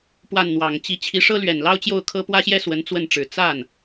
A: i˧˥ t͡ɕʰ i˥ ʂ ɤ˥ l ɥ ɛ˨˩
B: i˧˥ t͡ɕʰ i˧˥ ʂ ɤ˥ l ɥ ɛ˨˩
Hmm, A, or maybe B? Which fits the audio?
B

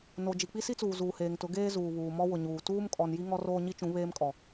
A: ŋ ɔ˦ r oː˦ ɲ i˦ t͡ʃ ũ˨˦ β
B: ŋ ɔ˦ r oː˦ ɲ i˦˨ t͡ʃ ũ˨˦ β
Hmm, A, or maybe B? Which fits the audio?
A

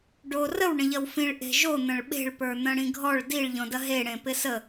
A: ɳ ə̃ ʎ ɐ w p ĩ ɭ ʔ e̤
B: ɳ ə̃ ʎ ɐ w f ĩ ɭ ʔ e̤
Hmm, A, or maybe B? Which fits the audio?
B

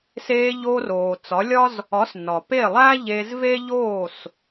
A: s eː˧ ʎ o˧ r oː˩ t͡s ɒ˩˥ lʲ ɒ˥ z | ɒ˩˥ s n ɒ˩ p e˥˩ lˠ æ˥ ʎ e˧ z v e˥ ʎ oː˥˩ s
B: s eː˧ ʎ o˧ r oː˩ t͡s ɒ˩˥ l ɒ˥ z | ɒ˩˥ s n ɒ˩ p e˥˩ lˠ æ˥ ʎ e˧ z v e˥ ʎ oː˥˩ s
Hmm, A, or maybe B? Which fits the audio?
A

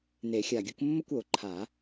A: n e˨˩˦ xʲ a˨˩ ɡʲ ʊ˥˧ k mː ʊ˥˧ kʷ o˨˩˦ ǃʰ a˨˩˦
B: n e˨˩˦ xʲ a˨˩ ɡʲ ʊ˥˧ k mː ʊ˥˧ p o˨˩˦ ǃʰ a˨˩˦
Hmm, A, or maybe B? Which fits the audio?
A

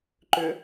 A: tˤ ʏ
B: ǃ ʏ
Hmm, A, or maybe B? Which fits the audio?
B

